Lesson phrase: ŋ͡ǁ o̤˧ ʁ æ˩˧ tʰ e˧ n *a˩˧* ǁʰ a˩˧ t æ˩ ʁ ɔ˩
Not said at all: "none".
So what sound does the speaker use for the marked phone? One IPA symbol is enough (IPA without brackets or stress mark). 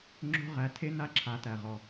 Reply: a˧